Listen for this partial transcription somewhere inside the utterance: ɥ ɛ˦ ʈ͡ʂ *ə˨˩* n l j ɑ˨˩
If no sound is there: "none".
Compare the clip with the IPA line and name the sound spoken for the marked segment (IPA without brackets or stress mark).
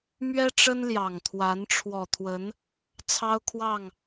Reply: ə˦